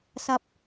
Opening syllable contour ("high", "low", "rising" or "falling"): high